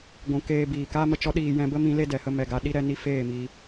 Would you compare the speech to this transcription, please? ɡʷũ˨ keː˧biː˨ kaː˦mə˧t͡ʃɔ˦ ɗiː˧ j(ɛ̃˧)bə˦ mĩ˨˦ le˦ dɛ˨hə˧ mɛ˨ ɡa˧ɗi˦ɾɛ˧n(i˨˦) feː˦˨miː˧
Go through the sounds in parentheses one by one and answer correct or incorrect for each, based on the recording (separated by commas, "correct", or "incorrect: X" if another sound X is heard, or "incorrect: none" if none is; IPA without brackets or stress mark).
correct, incorrect: i˦